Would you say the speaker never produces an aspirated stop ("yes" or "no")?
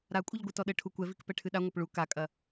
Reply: no